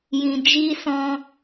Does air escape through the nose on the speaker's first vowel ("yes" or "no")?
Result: yes